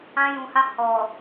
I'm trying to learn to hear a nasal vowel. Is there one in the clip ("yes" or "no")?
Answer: yes